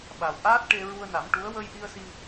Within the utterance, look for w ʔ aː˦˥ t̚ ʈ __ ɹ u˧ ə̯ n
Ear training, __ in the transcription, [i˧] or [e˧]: e˧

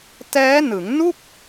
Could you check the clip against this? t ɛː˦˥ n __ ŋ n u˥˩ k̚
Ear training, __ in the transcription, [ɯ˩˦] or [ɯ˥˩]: ɯ˩˦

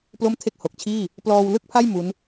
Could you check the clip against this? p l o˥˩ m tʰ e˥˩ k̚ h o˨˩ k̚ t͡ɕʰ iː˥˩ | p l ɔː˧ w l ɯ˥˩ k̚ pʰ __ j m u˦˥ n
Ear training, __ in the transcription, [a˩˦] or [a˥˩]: a˥˩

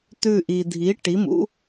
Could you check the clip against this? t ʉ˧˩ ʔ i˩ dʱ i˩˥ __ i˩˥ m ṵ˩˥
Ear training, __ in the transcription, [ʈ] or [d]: ʈ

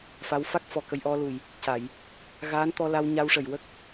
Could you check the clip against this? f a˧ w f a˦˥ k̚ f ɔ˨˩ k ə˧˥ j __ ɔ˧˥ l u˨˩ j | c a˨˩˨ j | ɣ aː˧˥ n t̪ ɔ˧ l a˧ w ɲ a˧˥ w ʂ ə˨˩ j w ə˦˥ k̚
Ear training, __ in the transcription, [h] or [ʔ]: ʔ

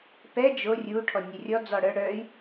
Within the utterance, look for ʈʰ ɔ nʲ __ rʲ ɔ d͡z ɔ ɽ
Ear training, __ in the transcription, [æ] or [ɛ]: ɛ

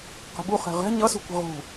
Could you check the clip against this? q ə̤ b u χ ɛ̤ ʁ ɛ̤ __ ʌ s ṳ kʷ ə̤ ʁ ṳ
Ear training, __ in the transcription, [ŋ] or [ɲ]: ɲ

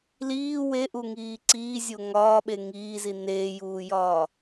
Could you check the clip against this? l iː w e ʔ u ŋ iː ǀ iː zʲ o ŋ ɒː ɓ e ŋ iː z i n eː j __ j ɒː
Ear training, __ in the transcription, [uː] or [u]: uː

